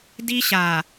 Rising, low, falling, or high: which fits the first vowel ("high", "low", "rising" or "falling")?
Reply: high